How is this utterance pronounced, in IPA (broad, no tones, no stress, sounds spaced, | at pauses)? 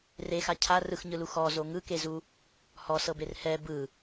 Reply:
r e x a cʰ a r ɯ x ɲ ɯ l u x ɔ z o ŋ ɯ k e z u | h ɔ s ɤ b e r h ɛ b ɯ